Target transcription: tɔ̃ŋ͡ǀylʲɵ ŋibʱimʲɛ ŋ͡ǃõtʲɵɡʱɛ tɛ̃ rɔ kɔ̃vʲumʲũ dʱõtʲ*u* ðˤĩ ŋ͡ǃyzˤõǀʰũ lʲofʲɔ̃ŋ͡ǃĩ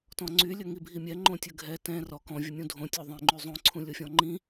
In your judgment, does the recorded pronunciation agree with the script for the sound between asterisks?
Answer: yes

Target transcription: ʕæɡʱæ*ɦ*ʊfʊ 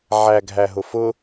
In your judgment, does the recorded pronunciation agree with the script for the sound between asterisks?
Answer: yes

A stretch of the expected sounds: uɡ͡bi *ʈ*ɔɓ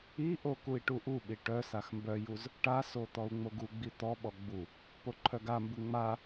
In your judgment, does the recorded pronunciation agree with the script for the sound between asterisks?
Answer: no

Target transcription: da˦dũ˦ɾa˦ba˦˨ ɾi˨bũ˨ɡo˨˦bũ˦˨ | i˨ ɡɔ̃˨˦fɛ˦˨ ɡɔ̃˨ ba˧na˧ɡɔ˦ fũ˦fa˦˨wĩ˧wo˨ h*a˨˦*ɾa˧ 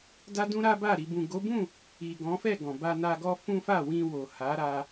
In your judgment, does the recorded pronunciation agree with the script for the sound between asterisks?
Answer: yes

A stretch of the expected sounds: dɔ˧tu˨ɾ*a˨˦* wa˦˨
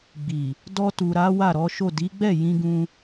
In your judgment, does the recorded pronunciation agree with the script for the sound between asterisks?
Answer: yes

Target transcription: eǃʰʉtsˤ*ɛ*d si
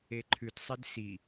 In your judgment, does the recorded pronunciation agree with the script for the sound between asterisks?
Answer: yes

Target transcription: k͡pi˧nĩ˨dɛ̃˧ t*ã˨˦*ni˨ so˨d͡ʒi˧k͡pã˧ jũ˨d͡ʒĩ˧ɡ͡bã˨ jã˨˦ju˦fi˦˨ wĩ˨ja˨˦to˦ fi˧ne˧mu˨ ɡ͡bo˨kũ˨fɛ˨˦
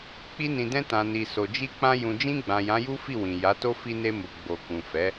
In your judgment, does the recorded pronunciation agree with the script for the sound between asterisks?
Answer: no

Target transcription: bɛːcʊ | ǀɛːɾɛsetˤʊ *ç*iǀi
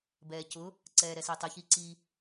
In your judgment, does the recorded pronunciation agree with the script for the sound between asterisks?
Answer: yes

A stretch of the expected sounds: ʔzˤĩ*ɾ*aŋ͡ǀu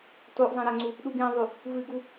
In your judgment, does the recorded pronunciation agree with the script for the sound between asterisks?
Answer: yes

